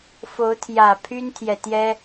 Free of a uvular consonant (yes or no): yes